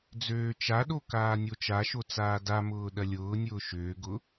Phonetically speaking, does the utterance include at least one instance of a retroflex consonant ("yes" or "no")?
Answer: no